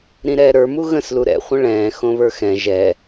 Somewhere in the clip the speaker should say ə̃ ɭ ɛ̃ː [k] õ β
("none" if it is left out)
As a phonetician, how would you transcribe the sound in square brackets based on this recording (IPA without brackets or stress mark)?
x